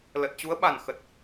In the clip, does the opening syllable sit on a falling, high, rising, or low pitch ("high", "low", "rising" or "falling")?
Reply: low